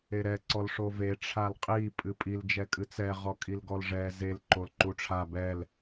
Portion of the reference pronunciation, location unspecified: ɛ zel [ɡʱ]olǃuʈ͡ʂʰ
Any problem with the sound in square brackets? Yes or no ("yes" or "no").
yes